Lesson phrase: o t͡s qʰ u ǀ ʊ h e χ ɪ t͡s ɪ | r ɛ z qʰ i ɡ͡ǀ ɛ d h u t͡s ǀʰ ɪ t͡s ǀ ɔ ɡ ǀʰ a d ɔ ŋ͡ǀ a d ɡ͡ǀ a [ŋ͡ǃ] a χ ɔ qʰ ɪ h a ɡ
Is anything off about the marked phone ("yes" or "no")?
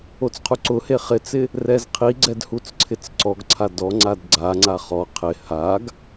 yes